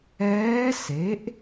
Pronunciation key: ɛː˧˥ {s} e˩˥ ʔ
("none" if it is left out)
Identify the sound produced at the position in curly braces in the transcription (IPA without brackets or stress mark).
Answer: s